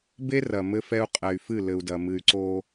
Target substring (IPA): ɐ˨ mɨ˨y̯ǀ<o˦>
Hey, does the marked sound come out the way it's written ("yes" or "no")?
yes